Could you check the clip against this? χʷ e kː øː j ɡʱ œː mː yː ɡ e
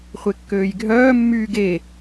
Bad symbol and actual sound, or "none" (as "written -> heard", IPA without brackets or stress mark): none